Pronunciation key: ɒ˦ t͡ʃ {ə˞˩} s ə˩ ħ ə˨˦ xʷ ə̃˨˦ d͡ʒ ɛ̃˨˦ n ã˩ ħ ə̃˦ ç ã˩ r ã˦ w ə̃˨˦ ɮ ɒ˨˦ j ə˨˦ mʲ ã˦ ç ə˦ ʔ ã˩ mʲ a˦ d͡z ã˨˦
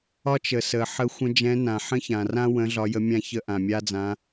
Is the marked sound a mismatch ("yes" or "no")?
yes